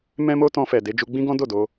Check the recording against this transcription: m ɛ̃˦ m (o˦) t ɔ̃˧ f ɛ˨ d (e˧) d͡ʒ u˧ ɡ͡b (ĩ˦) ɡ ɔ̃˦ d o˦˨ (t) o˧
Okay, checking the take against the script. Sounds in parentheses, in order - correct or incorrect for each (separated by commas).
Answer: correct, correct, correct, incorrect